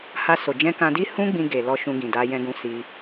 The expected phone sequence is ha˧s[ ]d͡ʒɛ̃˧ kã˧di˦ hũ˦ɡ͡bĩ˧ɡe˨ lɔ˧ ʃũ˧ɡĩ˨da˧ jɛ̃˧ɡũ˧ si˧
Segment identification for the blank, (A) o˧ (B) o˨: B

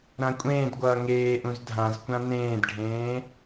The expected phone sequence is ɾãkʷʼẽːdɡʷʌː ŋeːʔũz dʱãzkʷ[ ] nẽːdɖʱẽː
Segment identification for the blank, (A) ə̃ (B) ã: B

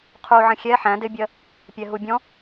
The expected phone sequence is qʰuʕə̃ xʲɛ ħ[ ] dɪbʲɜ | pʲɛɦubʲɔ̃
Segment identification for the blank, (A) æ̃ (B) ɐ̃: A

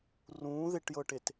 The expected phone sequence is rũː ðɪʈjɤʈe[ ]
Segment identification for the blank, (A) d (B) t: B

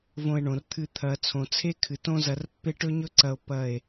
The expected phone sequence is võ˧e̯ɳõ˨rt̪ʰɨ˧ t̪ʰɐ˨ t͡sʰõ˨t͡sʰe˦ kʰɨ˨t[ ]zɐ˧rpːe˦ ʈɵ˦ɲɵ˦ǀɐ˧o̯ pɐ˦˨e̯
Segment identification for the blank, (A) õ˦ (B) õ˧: A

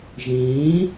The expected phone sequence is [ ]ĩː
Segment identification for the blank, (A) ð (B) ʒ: B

